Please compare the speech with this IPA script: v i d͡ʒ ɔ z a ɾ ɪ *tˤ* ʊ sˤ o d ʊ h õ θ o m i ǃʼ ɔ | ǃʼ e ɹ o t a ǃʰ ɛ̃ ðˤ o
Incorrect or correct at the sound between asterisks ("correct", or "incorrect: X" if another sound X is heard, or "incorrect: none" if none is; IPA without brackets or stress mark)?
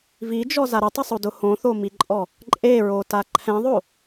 correct